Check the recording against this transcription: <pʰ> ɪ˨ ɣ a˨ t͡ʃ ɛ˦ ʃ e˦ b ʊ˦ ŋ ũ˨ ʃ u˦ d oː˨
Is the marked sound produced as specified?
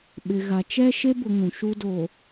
no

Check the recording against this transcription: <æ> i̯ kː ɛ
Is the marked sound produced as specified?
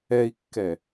no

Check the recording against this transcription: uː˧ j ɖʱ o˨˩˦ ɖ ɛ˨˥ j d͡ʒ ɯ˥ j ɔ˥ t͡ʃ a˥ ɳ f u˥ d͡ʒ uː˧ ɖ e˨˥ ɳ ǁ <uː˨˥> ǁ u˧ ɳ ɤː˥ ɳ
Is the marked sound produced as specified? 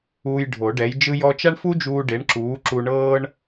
yes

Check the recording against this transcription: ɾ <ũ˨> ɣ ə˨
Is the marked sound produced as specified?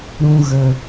yes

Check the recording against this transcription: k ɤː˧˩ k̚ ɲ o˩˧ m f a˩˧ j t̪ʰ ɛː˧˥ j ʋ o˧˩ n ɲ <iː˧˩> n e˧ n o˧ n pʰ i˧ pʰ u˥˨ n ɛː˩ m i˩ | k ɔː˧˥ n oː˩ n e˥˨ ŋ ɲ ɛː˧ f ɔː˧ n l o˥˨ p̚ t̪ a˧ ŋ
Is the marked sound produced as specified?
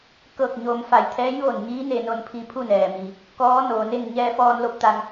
no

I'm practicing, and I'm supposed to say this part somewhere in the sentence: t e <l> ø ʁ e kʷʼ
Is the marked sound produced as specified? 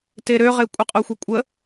no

